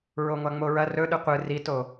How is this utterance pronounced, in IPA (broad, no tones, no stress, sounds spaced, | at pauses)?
ɹ o ŋʷ a ŋ͡m o ɹ ɐ r ɵ ɗ ɨ qʷ ɨ r i t o